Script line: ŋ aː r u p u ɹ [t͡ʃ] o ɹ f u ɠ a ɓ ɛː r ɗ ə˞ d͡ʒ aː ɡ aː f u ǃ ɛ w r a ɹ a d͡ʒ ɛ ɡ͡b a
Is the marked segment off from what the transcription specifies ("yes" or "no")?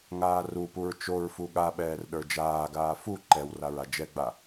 no